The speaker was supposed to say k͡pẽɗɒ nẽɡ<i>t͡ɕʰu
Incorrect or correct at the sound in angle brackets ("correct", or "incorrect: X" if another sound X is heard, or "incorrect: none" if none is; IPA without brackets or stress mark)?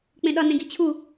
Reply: correct